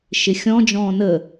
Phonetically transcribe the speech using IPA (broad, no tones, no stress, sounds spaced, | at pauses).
ʃ ɪ xʲ ɔ̃ d͡ʒ ɔ̃ː n əː